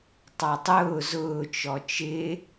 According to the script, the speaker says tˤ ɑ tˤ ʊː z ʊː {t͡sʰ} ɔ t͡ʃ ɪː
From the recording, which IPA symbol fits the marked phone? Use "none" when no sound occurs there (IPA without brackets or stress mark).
t͡ʃ